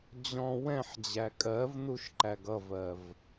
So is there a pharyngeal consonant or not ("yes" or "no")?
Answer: yes